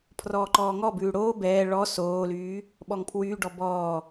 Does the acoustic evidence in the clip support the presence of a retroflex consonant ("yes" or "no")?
yes